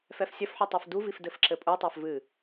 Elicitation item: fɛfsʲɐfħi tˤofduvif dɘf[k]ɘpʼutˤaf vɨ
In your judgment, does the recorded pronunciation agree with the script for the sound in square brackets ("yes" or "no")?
no